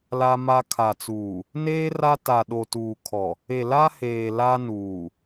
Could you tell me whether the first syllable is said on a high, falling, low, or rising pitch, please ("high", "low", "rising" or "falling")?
high